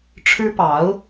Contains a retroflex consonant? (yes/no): yes